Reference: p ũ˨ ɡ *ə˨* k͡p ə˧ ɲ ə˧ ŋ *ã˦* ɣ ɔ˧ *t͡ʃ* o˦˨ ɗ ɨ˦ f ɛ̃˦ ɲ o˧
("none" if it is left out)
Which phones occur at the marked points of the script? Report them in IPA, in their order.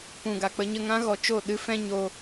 a˨, ã˦, t͡ʃ

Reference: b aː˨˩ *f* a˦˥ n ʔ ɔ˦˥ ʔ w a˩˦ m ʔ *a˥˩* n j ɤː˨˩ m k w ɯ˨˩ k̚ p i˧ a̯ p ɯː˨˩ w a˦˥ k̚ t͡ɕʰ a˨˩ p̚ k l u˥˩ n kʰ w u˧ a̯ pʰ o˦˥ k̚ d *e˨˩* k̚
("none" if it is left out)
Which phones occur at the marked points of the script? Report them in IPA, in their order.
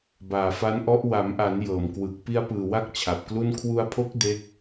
f, a˩˦, e˦˥

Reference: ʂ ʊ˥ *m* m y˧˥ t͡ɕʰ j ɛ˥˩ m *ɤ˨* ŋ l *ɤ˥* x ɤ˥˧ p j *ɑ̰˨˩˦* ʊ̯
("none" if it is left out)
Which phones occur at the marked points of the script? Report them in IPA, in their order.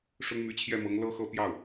ŋ, ɤ˧˥, ɤ˥, ɑ˥˩

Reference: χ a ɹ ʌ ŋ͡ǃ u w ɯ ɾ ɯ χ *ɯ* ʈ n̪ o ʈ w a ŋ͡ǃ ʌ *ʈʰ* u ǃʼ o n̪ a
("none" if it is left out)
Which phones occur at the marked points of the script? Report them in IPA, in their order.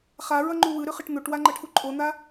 ɯ, ʈʰ

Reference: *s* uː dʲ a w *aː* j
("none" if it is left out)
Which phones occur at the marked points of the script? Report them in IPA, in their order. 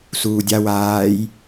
s, aː

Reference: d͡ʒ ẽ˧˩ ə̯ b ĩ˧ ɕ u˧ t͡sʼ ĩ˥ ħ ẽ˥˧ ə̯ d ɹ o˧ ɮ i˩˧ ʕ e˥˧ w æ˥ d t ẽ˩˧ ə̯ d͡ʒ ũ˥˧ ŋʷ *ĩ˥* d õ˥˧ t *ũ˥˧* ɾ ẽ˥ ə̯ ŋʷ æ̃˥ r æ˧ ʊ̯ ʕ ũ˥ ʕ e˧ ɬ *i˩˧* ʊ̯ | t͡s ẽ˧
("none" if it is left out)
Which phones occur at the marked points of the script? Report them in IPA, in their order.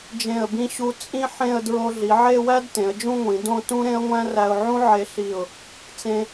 ĩ˩˧, ũ˥, i˧˩

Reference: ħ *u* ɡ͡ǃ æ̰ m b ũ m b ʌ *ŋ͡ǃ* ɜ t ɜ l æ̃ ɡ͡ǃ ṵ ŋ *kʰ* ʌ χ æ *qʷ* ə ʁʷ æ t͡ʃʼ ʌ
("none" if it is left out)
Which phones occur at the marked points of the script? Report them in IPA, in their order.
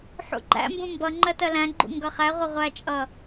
ṵ, ŋ͡ǃ, ɡ, ʁʷ

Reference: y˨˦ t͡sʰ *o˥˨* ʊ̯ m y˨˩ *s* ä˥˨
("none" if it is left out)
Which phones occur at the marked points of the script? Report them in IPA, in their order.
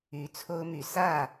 o˦, s

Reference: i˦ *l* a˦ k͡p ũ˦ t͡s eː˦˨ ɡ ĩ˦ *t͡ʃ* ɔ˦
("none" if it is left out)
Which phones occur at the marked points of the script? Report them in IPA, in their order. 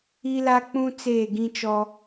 l, t͡ʃ

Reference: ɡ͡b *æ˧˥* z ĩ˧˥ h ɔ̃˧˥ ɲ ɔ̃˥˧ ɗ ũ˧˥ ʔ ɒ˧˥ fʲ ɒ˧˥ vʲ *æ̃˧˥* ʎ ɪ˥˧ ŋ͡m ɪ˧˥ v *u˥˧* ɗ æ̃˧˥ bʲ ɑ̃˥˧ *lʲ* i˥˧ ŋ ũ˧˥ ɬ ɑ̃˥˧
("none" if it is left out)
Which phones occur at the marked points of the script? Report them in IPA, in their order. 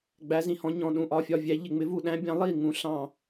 æ˧˥, æ˧˥, u˥˧, lˠ

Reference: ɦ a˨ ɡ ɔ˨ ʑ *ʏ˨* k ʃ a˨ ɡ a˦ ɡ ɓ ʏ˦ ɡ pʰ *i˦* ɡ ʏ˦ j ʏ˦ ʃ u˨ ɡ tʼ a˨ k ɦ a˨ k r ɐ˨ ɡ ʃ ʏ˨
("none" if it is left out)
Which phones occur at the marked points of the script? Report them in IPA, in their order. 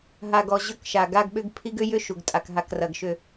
ʏ˦˨, i˦

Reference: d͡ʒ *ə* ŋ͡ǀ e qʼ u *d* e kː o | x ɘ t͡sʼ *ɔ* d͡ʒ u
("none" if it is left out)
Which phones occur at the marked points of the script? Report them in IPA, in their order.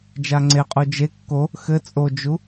a, d͡ʒ, o

